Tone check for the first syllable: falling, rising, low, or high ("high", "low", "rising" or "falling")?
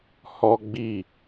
high